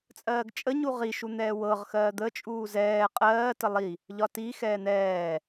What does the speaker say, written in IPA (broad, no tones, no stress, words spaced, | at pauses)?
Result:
t͡sʼɜːɡt͡ʃʼəɲu ʁiʃun̪ɛː wɤʁ xɜːd̪ət͡ʃʼuː zɛː qʼɜː təlˠi | ʎɒti xɛːn̪ɛː